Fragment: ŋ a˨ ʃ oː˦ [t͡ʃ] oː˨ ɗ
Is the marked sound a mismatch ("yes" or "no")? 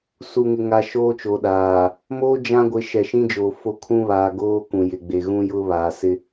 no